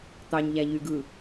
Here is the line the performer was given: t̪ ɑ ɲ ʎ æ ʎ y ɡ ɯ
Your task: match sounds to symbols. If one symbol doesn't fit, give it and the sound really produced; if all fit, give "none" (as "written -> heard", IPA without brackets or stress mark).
none